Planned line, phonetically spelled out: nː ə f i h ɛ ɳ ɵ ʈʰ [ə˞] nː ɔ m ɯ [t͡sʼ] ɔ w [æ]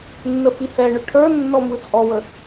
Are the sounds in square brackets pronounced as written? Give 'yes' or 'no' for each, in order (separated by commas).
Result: yes, yes, no